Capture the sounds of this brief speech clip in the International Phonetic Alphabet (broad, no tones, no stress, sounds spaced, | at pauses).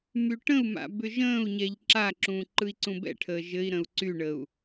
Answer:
m y ʈ ə̃ u̯ m a̰ b ʏ ʒ ə̃ː u̯ ɲ ɛ ʎ ǁ a ǁ ũ ǃ ɯ i̯ ǀ ũ b ɛ̰ ʈʰ əː ʒ ɘ i̯ ɾ ə̃ u̯ ǀ y ɳ ə u̯